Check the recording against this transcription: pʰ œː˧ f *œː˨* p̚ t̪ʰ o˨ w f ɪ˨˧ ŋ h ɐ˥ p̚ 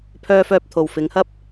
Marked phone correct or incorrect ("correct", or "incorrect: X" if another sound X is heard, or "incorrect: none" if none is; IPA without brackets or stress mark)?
incorrect: œː˧